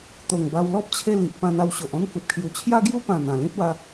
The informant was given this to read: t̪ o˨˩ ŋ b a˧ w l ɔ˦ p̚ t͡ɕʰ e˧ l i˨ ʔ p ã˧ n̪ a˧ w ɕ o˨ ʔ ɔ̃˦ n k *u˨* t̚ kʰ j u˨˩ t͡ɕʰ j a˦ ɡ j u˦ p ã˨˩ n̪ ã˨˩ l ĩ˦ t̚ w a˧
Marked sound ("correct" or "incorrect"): correct